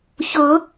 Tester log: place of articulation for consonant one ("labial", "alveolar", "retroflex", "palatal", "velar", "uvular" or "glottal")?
palatal